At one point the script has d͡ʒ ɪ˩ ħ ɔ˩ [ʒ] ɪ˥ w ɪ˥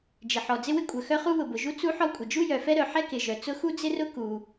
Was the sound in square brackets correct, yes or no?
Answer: no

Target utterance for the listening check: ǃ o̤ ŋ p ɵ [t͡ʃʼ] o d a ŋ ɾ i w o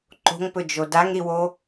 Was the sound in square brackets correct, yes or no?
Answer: no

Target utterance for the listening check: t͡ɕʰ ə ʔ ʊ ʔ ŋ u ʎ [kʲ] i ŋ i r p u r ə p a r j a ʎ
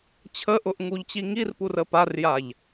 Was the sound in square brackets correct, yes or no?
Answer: no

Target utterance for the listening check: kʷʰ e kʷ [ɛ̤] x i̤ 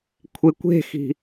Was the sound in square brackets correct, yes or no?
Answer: no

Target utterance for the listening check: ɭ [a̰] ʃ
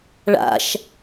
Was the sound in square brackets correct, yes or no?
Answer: yes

